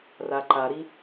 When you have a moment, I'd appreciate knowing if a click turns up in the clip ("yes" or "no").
yes